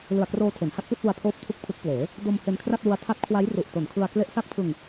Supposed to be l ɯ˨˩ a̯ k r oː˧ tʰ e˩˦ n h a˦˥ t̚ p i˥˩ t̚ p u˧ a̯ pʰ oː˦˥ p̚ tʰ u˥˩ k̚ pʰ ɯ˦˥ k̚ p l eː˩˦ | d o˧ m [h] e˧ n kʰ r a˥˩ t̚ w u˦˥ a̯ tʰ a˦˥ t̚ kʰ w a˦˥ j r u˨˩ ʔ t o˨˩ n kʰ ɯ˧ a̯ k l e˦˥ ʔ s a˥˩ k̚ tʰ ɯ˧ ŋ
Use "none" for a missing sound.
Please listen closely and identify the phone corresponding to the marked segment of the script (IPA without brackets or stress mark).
h